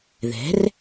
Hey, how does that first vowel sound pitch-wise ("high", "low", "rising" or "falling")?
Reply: rising